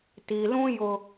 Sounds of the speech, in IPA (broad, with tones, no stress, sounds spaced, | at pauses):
t i˨ l ũ˦ j ʊ˦